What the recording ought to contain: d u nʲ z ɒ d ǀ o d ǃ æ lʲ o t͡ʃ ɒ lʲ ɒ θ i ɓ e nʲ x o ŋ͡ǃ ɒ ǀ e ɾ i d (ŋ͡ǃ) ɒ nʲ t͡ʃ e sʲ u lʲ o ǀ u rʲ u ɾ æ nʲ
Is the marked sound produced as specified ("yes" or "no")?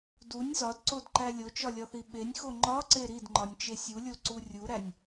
yes